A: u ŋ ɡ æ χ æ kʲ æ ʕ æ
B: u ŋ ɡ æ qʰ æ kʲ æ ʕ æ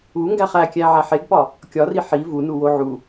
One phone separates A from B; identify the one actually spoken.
A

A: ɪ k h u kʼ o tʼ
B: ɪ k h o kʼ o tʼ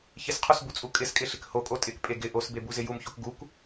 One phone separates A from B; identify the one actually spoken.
B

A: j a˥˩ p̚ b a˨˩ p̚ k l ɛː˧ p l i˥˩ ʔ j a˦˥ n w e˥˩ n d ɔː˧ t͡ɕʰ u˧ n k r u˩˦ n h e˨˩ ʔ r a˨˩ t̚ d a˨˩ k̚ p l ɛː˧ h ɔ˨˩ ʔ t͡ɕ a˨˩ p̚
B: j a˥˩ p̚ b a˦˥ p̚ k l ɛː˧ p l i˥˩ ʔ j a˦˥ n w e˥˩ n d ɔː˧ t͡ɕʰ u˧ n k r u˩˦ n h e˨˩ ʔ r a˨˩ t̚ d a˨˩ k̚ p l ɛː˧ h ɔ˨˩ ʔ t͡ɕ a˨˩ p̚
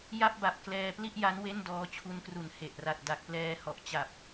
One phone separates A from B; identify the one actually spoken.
A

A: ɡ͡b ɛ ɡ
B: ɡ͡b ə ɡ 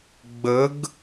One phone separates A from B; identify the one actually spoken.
B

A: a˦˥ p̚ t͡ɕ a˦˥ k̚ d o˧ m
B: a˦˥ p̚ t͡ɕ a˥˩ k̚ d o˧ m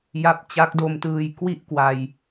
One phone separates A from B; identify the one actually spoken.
A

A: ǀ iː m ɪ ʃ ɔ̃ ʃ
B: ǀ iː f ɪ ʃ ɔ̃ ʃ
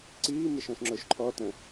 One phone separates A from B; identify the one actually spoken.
A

